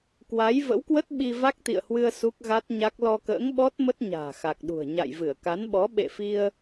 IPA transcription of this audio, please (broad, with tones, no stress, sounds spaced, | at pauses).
k w a˨˦ j v ə̰˧˥ w k w ə˦˥ t̚ ɓ i˧ v a˦˥ k̚ t̪ ḭ˧˨ ə̯ h w ɨ˧ ə̯ s u˦˥ k̚ ɣ a˦˥ t̚ ɲ a˦˥ k̚ l ɔ˧ k ə̰ː˧˥ ŋ ɓ ɔ˦˥ t̚ m ə˦˥ t̚ ɲ a̤ː˨˩ x a˨˩ k̚ ɗ ṳ˨˩ ə̯ ɲ a̰˧˨ j v ɨ˧˩ ə̯ k a˨˦ n ɓ ɔ˨˦ ɓ ḛ˧˨ f i˧ ə̯